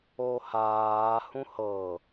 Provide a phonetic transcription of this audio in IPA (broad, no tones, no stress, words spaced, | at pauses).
ohaː hũhɤ